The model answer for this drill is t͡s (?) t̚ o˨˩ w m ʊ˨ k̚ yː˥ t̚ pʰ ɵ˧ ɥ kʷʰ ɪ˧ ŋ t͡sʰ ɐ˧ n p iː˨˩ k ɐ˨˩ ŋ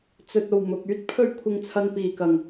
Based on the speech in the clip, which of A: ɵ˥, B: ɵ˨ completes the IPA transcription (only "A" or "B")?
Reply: B